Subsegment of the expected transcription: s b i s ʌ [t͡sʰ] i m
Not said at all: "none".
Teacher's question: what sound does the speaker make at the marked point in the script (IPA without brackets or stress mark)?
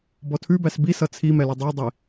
t͡sʰ